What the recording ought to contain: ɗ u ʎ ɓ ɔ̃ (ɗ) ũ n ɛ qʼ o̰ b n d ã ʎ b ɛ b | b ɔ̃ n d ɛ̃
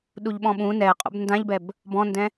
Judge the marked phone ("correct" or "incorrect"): incorrect